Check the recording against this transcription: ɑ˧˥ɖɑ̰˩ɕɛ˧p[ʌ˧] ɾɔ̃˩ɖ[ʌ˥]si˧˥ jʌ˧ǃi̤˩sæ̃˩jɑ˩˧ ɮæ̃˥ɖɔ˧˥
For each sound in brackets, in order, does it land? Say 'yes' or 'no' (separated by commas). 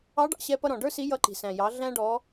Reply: yes, no